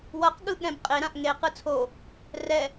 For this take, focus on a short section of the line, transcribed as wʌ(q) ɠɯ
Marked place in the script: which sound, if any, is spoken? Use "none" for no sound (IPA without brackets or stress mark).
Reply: q